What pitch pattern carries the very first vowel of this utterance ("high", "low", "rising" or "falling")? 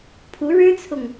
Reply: rising